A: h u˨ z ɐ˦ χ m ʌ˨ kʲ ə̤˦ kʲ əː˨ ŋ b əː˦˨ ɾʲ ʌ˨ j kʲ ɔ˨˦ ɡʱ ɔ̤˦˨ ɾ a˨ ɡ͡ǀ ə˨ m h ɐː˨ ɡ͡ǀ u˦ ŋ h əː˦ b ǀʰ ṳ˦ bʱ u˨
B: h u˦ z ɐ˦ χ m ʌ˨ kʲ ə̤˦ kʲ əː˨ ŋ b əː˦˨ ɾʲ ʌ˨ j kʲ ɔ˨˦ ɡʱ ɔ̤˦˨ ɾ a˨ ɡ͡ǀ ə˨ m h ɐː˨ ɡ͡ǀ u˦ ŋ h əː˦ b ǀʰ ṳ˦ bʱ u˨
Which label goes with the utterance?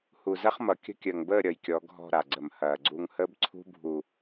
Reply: A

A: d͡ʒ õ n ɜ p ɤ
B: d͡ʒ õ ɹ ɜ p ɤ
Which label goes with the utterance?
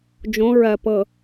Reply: B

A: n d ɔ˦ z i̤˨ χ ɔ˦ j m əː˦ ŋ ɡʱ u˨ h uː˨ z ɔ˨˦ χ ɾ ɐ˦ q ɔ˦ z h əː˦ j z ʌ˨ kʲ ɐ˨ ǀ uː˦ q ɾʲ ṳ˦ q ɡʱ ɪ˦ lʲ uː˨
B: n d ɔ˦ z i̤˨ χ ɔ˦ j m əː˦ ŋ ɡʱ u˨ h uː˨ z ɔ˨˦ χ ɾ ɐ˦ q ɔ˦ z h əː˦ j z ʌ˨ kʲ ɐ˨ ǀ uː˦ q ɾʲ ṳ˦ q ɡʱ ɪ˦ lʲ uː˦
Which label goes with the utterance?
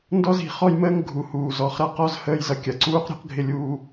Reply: B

